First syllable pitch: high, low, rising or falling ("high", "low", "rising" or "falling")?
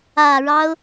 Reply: low